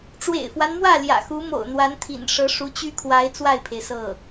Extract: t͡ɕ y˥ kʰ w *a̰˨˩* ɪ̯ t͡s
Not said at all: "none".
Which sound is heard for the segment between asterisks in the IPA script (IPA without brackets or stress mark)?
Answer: a˧˥